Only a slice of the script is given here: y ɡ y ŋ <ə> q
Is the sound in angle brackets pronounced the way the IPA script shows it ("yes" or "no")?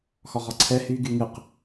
no